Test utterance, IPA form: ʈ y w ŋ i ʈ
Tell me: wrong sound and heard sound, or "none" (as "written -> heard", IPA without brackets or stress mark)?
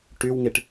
none